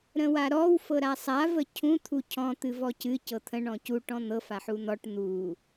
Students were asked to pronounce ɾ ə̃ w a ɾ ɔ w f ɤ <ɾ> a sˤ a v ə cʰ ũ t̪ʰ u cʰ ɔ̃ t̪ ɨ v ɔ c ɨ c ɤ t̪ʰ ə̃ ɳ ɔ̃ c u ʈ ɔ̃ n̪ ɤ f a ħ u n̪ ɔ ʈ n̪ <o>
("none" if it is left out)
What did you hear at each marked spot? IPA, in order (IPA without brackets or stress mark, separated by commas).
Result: ɾ, u